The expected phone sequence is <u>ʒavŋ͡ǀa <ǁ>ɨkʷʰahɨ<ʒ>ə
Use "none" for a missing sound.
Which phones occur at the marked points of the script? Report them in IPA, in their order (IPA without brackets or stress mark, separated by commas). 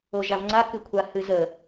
o, k, z